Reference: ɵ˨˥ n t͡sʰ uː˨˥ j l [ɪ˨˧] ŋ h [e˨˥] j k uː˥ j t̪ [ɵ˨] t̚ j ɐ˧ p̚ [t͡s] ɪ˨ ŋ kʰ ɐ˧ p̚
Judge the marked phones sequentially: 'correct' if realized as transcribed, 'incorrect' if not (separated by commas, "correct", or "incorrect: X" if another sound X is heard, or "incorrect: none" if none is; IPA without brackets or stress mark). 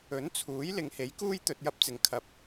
correct, correct, incorrect: ɵ˧, correct